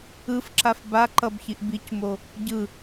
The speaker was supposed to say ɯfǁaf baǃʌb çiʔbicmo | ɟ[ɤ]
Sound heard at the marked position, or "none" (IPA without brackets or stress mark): ɯ